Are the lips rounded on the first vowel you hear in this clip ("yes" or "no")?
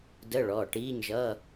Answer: no